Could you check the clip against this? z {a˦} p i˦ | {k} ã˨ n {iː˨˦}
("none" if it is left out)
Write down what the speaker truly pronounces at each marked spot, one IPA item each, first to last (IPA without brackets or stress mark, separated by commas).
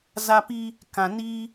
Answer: a˦, k, iː˦